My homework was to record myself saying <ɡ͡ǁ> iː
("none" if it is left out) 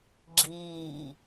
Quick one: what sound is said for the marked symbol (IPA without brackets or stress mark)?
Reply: ɡ͡ǁ